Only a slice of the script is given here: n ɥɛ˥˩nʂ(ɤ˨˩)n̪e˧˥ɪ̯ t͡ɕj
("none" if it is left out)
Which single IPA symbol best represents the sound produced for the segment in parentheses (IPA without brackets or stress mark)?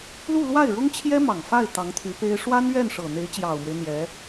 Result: ɤ˨˩